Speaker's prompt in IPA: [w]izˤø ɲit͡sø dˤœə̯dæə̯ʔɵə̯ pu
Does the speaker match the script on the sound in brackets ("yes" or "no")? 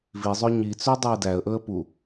no